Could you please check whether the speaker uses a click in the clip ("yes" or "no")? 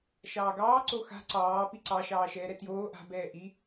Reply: yes